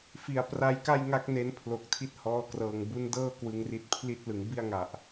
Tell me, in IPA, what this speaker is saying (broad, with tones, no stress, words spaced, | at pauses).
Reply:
fi˨˩a̯ pra˦˥jka˥˩jŋa˦˥k̚ ne˦˥npʰlo˨˩k̚tʰi˦˥t̚ hɔː˧krɤː˨˩ŋ bu˦˥ndɤː˥˩ kwɯ˧ŋri˦˥t̚ pʰli˥˩t̚ lɯ˩˦ŋbi˥˩a̯ŋa˨˩ʔ